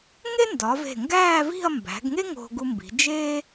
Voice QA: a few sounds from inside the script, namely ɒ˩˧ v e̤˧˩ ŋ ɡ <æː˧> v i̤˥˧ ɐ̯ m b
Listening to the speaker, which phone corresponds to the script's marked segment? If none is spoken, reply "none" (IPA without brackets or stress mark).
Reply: æː˥˧